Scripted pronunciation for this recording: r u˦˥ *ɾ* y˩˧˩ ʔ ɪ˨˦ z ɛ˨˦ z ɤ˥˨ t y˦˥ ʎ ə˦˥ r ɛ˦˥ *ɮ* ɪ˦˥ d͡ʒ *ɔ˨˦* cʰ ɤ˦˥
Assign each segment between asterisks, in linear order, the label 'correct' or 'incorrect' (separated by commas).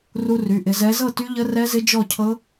incorrect, incorrect, incorrect